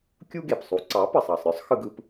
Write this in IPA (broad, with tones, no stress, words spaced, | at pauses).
kʲu˥ɡe˩psˤu˩˥ ǀɑ˩˥pə˩sˤɑ˩sˤɾʲɔ˥sˤ xɯ˧ɡɯ˧p